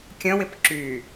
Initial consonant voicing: voiceless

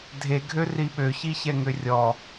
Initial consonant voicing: voiced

